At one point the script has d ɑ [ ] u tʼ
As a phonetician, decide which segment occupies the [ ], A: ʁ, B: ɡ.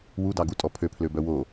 B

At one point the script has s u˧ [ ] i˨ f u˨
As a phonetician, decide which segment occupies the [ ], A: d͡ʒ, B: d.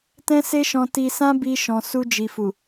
A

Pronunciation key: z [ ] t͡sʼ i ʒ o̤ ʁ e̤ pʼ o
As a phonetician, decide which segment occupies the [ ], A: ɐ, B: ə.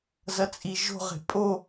A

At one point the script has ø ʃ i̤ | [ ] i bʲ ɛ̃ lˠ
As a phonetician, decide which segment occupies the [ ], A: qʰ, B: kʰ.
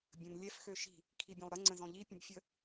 B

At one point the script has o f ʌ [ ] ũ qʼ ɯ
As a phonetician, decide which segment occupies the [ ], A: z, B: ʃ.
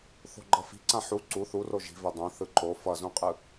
A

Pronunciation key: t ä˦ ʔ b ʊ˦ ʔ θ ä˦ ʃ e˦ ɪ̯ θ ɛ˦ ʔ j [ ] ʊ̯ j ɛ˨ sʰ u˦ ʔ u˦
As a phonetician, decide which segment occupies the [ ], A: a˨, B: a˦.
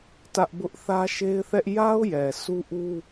B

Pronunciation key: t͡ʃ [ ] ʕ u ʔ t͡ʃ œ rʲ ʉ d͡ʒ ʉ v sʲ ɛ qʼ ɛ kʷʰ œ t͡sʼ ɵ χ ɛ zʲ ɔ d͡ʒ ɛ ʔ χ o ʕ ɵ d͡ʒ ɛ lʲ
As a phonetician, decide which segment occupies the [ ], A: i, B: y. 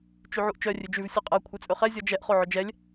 B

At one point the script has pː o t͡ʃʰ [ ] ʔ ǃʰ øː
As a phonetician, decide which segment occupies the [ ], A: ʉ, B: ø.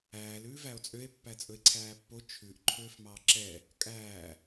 A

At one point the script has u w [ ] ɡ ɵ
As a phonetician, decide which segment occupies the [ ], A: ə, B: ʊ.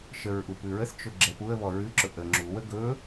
A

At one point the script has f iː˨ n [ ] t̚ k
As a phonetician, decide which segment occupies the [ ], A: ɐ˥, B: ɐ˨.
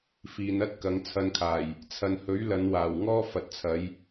A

